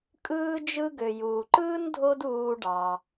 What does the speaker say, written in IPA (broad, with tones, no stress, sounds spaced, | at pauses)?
kʼ ɯː˥ d͡ʒ ɯ˥ ɡ ø˩ j uː˩ ǃ ɯː˥ n dʱ o˥ d uː˧ ɖ ɑ˩